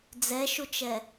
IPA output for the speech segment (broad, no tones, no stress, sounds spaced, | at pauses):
d͡z ɛ ʃ u t͡ʃ ɛ